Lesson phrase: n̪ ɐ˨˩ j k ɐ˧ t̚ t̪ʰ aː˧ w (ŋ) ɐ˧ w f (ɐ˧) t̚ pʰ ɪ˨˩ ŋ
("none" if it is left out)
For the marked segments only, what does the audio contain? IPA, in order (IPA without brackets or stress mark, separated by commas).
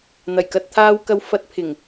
k, ɐ˧